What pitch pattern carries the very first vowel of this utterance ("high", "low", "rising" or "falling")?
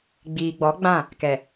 low